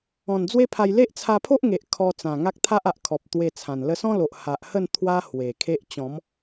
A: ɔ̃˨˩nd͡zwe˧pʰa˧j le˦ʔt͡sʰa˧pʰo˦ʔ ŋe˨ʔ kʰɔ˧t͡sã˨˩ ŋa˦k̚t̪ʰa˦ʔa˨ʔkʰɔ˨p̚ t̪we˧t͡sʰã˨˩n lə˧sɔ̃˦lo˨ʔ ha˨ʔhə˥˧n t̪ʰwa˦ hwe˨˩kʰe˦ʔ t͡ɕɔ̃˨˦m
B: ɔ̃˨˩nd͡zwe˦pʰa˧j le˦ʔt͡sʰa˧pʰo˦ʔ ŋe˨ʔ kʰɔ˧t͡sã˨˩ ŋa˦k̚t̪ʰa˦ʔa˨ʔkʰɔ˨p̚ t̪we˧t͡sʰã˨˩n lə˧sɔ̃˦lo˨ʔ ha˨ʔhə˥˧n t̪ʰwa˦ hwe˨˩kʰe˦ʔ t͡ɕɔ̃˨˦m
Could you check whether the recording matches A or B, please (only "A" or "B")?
B